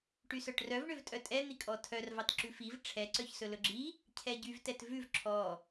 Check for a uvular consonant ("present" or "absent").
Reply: absent